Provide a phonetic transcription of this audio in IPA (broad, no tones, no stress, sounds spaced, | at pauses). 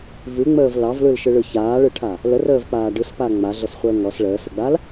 v ʉ ŋ͡m əː v l ɑ v l ɯ l ʃ ɯ ɭ ɯ ç aː ɭ ɯ ʈʰ a | l ə r əː v k͡p aː ɖ ɯ s p a ŋ͡m a ɮ ə s χʷ əː ŋ ɔ s ɭ əː s ə ɡ͡b a l